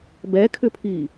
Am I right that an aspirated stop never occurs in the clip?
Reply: no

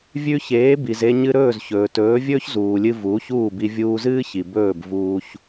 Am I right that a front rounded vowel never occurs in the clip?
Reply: yes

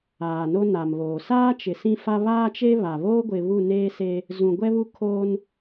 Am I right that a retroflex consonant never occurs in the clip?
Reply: yes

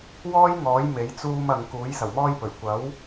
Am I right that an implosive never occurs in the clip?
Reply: yes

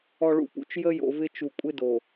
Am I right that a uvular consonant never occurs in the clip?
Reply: yes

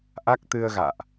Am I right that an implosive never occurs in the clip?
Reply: yes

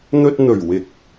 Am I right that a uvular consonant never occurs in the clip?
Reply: yes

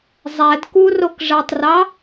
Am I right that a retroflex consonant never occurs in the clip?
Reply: no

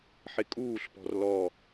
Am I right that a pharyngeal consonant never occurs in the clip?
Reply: no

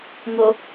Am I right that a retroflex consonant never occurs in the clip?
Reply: yes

